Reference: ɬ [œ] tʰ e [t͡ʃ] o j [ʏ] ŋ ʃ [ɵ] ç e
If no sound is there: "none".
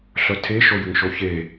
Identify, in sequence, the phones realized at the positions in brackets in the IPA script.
œ, ʃ, ʏ, o

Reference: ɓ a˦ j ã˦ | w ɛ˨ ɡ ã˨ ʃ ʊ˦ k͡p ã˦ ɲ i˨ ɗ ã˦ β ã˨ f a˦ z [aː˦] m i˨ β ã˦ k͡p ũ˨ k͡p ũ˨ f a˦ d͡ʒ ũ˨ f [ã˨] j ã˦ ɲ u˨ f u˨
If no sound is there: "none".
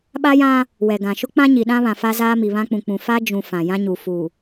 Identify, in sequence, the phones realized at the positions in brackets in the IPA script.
aː˦, ã˨

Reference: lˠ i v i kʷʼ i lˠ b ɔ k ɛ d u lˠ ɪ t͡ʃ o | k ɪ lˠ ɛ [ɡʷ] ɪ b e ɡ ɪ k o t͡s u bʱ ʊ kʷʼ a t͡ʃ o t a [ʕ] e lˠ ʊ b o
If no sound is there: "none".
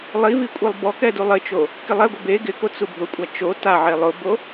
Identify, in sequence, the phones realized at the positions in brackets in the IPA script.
ɡʷ, ʕ

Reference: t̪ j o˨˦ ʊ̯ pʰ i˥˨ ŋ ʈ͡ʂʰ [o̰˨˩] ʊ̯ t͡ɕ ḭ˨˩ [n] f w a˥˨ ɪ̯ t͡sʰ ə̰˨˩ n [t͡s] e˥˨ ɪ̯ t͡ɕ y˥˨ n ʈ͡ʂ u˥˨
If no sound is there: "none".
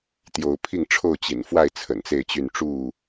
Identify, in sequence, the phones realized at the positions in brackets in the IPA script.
o˥˨, n, t͡s

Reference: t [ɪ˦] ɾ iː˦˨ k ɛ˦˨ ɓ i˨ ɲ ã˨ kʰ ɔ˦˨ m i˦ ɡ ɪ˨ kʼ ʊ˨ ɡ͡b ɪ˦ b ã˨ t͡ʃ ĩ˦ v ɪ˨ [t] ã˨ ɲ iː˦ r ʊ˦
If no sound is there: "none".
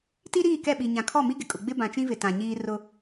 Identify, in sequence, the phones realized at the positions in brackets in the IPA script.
i˦, t

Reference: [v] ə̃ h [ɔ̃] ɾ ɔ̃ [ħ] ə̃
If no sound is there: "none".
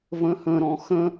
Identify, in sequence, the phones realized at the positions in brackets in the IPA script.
v, ə̃, x

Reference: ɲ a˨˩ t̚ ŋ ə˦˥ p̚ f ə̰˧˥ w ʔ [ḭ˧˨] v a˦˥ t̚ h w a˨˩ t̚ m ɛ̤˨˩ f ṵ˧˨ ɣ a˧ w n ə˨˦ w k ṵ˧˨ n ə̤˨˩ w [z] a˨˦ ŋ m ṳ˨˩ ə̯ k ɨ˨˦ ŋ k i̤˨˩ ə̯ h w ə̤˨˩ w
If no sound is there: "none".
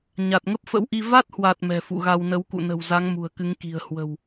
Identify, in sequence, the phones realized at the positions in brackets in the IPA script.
i˧, z

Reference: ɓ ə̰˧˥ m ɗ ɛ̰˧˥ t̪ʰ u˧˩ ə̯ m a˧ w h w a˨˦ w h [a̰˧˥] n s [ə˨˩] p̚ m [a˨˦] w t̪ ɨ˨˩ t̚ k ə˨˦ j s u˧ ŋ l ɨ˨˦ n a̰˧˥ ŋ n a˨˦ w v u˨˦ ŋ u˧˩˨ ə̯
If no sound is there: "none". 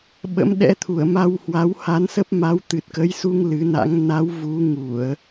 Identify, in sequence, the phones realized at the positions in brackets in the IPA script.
a˨˦, ə˦˥, a˨˦

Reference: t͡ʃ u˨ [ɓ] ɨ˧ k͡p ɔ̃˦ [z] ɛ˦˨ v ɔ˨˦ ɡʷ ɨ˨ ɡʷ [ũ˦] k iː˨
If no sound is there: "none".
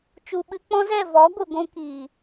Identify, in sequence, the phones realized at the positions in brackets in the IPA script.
ɓ, z, ũ˧

